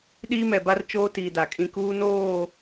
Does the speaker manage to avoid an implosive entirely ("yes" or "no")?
no